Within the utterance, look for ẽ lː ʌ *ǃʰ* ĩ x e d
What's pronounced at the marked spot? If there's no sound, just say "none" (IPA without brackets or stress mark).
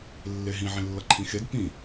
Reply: ǃʰ